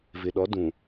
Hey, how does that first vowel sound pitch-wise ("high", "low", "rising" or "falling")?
low